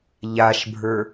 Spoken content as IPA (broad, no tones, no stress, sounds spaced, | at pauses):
ʎ a ʃ bʱ ə˞